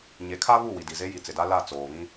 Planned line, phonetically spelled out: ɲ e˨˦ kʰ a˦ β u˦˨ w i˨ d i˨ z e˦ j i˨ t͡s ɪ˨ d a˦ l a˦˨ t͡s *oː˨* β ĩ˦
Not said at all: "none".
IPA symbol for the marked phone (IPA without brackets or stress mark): oː˨